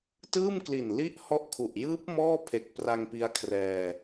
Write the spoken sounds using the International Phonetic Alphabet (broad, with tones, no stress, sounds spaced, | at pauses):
t ɯː˥˩ m k l i˨˩ n l i˥˩ ʔ h ɔ˥˩ ʔ kʰ u˨˩ ʔ j ɯː˦˥ p̚ m ɔː˥˩ pʰ e˨˩ k̚ p r a˧ ŋ p i˦˥ a̯ kʰ r ɛː˧